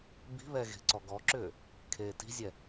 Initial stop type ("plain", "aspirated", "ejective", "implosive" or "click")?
plain